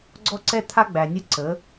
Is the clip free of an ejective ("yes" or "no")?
yes